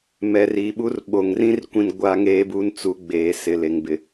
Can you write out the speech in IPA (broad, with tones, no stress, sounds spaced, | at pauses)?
m ɛ˨ r iː˨ ɓ u˦ r ɓ o˨ ŋ r ĩ˦ r kʷ ĩ˦ n ɡʷ aː˦ ŋ eː˦ b u˦ n t͡s u˨˦ ɡ͡b eː˨ s ɪ˨ l e˨ ŋ b ɪ˨